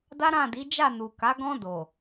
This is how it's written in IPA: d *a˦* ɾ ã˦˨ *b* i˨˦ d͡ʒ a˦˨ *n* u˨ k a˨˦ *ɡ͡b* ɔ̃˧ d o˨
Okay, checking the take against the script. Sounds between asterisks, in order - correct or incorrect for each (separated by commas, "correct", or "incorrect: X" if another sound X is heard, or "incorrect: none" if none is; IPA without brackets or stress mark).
correct, incorrect: d, correct, incorrect: ɡ